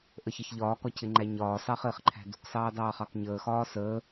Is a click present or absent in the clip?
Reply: present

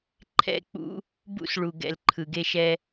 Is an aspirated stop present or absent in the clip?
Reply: present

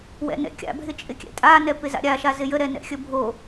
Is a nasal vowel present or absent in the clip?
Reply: absent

